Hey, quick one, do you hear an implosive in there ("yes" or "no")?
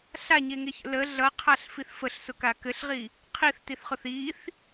no